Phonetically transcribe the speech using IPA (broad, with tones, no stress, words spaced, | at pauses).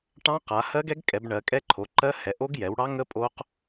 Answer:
ʈɑ̃˦˥q a˩˧ hɜ˦˥ɡɛ˦˥ɡkʼɛ˩˧b ɳɜ˩˧kʼɛ˦˥ ǃʰo˩˧ǃɜ˦˥hɛ˩˧ ʔo˦˥ɡjɛ˩˧wɽɑ˦˥ŋə˦˥ pʼo˦˥q